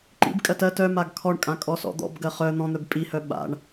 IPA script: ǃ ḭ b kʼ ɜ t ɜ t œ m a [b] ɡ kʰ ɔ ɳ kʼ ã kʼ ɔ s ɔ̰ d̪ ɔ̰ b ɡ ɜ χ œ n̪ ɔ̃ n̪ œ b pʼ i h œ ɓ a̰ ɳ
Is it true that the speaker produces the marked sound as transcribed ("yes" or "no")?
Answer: no